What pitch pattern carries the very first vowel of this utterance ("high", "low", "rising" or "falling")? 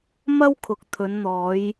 high